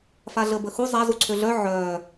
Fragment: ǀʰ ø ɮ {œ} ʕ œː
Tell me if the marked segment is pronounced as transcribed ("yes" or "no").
yes